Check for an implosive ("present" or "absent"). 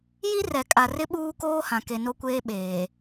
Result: present